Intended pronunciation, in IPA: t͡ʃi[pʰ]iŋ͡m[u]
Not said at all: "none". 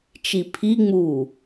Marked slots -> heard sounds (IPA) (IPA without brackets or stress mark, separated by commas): pʰ, uː